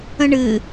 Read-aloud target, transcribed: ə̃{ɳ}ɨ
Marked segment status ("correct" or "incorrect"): correct